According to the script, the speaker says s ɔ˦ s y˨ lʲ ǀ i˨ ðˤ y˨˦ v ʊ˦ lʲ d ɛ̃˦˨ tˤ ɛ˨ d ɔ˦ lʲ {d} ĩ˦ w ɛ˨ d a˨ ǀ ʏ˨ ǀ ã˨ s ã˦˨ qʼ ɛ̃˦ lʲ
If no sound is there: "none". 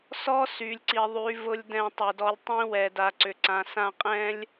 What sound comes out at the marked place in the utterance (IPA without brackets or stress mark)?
tˤ